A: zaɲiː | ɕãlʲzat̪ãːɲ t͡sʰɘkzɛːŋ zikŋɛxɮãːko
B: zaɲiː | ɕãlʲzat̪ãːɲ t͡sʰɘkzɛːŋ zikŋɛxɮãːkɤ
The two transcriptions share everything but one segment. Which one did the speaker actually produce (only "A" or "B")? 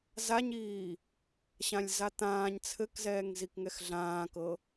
B